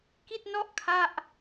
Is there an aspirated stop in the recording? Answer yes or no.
yes